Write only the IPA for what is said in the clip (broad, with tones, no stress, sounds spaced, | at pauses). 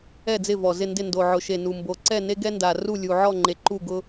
ɛ˥˩ d͡z ɪ˥˩ v ɔ˨˩ z ɪ˥˩ n d ɪ˥˩ n d o˨˩ ʕ ʊ˨˩ ʃ e˨˩ n u˨˩ m b o˨˩ ǀ ɛ˥˩ n e˦ ɡ ɛ˦ n d a˨˩ r u˥˩ lʲ u˨˩ ʕ ɔ˥˩ ŋ͡ǃ e˨˩ ǃ u˥˩ ɡ ʊ˦